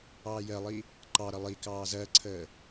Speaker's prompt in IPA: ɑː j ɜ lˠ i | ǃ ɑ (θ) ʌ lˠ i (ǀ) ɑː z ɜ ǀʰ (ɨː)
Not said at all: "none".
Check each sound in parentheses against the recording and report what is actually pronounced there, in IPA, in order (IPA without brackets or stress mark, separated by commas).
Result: ɾ, k, əː